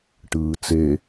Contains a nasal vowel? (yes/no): no